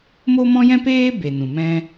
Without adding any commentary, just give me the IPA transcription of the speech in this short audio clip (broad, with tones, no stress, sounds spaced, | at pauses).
m o˦ m ɔ̃˦ j ɛ̃˦ p eː˦ b e˨ n ũ˨ m ɛ̃˧